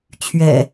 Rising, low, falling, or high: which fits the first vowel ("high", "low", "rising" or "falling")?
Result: low